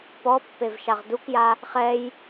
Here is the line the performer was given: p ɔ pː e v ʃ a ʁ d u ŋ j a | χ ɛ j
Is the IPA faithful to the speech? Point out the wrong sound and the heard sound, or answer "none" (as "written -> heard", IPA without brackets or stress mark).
ŋ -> k